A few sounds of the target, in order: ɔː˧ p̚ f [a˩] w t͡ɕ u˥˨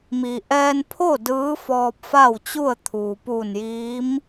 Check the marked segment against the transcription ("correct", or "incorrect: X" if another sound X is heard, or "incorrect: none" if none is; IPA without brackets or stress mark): incorrect: a˥˨